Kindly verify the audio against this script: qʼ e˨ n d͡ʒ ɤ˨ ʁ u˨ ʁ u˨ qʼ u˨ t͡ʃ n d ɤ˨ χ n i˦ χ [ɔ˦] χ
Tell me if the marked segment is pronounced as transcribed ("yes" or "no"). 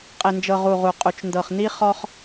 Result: yes